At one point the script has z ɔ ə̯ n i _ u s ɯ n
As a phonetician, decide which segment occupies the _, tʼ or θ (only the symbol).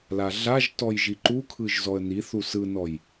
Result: θ